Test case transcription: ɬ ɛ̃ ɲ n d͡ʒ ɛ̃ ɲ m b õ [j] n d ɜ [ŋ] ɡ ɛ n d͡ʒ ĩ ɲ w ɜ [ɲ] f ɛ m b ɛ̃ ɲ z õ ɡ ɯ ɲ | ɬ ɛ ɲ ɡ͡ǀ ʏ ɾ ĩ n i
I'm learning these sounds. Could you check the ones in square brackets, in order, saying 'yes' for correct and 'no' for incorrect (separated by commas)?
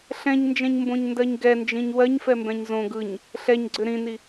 no, no, yes